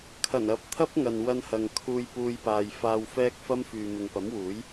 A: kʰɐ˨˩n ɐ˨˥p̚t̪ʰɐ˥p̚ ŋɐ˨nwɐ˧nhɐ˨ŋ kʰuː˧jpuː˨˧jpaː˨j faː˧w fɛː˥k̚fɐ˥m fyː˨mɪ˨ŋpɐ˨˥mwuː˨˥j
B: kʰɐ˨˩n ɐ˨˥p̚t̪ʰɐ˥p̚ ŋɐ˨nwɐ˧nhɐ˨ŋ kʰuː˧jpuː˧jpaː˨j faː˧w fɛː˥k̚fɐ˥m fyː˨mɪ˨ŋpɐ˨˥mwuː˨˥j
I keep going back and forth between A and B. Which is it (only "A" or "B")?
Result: B